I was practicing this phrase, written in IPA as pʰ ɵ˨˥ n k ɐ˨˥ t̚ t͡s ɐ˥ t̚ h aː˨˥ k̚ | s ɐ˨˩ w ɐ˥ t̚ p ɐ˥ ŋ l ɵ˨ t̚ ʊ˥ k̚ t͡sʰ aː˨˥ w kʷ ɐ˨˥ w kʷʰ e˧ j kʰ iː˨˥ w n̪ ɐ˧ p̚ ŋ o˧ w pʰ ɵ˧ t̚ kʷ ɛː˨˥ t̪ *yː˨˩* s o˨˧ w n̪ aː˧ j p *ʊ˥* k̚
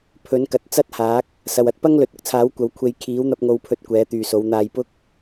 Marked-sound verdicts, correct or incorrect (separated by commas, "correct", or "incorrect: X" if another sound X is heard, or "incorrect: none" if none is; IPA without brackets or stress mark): incorrect: yː˨, correct